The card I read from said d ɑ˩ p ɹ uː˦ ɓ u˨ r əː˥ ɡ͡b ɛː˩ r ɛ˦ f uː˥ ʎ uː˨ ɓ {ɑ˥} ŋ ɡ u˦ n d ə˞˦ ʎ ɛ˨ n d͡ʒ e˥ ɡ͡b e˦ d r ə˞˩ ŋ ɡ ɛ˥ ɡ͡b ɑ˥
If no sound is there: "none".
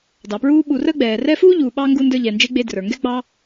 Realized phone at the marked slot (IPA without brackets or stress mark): ɑ˥